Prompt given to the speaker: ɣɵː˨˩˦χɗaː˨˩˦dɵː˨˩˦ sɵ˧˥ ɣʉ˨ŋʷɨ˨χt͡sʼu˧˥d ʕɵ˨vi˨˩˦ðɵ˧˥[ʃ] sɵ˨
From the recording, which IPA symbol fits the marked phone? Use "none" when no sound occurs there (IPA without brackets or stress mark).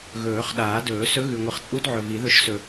ʃ